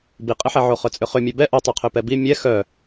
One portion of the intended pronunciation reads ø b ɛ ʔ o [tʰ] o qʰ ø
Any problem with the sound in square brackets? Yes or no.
yes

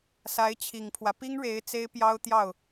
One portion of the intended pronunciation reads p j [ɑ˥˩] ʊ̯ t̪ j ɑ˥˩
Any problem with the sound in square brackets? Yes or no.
yes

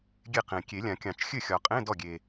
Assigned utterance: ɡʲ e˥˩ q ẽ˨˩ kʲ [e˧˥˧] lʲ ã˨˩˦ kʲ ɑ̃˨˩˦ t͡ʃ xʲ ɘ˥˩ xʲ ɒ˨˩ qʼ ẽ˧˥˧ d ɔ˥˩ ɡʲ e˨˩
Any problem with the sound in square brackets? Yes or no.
yes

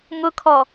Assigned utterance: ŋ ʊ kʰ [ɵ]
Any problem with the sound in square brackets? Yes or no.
yes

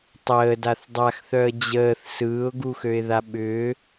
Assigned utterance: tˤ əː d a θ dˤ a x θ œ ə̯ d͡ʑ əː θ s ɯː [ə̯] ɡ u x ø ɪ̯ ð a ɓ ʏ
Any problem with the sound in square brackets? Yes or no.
yes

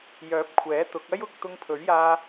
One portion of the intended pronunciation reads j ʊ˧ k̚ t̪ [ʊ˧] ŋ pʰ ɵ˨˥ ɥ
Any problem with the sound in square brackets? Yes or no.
no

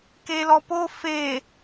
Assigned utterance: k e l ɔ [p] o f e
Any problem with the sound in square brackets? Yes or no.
no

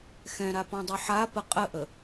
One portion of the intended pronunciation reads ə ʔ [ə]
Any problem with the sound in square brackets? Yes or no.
no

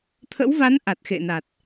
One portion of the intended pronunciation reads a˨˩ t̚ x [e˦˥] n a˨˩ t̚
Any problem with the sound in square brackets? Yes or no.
yes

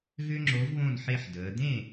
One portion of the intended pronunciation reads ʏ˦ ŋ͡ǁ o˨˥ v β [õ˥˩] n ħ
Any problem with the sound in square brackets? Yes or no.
no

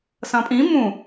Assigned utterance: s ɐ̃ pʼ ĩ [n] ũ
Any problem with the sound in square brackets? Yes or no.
yes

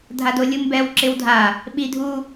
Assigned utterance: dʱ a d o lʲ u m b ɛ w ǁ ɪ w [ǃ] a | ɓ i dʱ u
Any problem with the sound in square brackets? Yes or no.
yes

